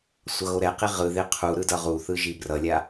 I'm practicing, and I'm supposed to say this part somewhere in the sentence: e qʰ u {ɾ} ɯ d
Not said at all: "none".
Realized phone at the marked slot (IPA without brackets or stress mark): ɾ